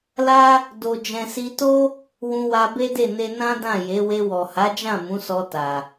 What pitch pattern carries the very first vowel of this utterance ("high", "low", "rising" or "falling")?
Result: high